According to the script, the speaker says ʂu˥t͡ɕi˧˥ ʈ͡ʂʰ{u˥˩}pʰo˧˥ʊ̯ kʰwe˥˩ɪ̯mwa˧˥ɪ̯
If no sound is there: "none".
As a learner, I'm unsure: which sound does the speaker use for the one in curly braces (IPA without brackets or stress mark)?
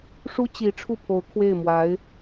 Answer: u˥˩